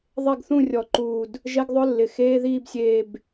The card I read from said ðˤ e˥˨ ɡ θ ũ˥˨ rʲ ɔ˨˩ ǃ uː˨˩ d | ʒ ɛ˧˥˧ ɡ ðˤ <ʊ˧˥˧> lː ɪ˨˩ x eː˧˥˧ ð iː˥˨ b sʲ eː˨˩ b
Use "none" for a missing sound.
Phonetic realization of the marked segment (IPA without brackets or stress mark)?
ʊ˧˥˧